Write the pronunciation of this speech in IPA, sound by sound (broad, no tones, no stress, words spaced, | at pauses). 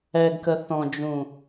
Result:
ɛɡkə θɔ̃d͡ʒũ